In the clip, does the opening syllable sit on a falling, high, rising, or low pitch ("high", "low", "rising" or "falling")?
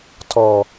low